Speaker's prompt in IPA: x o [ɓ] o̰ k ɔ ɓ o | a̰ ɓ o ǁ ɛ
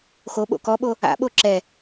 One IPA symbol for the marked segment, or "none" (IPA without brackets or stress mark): ɓ